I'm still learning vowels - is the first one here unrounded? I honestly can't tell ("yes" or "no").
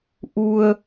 no